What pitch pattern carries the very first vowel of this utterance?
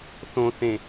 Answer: low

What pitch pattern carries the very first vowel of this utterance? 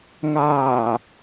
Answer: low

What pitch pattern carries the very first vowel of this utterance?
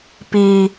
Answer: high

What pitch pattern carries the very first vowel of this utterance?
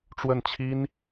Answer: falling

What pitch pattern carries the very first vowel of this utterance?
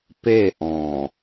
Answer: falling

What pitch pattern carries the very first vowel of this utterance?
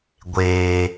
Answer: low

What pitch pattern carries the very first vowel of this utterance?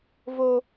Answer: high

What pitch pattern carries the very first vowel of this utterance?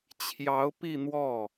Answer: rising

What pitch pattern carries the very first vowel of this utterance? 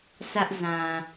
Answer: high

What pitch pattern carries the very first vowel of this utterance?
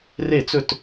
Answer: falling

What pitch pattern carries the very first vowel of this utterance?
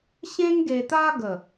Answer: high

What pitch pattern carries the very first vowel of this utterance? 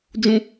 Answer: high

